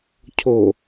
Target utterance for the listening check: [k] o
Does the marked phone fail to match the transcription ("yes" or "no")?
yes